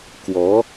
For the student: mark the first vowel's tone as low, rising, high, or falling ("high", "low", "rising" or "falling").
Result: rising